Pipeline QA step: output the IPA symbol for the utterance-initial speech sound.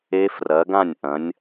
e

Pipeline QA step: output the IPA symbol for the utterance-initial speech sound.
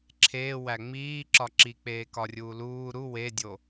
ǁʰ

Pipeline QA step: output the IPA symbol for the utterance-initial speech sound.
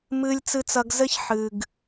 m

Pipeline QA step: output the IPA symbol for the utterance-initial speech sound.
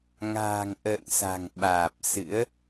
ŋ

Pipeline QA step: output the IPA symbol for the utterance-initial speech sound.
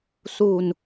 s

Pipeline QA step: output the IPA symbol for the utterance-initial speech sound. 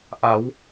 ʔ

